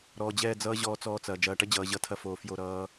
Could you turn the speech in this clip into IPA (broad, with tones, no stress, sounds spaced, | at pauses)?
ɾ ɔː˨ d͡ʑ ɛ˦˨ d͡z ʌː˦ ʑ ɔː˦ t͡s ɔː˦ t͡s ɐː˨ d͡ʒ ɐː˨ ʈ ɐ˦ d͡ʑ ʌː˨ ʑ ʌ˦ tʰ ɐ˦ f oː˨ f j o˦˨ ɾ ʌː˦